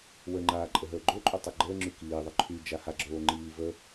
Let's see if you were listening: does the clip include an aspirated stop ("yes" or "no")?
yes